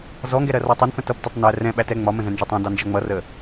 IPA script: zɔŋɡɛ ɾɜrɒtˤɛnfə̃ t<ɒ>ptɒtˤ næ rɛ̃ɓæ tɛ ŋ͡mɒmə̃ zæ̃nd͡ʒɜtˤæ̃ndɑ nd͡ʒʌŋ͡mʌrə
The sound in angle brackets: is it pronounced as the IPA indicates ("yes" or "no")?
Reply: no